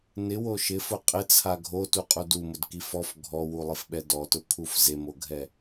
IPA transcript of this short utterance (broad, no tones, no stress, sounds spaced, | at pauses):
n ɪ w o ʃ ɪ f ʊ qʼ ɪ t͡sʰ a ɡʱ o t u qʼ u d u m ʊ d k i f ɔ f ɡʱ ɔ w u lˠ ɪ f ɓ ɛ d ɔ t ʊ kʰ u f z e m o ɡʱ ɛ